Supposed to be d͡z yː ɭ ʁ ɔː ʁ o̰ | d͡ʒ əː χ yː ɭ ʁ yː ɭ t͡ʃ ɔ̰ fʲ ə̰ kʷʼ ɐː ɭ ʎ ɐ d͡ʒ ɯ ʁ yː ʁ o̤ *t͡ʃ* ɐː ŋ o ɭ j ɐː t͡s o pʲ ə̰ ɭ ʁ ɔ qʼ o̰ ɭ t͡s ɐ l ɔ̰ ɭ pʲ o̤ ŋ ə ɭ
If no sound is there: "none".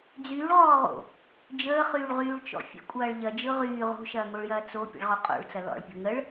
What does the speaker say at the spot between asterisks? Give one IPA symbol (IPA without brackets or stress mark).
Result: ʃ